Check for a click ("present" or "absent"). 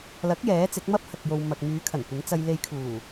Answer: absent